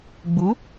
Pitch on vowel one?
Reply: rising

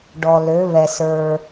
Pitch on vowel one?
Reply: low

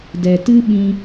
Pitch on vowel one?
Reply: low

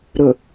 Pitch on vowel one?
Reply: low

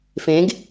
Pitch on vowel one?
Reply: rising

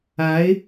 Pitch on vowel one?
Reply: rising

